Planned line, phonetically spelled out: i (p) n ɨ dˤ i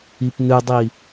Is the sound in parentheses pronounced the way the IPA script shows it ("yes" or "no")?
yes